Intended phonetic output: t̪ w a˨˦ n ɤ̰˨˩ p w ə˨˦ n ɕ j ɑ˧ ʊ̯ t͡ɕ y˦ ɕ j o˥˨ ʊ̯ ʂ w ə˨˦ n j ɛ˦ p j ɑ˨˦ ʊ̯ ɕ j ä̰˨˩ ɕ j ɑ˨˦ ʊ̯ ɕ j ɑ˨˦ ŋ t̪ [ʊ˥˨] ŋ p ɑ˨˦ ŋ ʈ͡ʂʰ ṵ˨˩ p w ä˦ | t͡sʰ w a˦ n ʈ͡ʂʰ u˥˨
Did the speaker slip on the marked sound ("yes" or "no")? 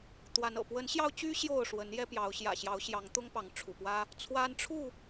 yes